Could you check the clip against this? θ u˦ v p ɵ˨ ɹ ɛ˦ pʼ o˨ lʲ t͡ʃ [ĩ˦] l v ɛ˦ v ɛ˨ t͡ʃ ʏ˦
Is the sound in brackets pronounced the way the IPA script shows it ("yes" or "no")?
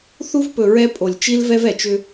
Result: no